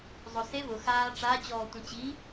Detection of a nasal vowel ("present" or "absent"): present